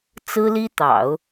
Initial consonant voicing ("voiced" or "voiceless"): voiceless